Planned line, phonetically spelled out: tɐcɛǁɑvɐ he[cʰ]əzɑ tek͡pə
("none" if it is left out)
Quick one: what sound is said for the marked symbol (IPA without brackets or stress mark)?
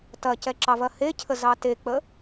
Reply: cʰ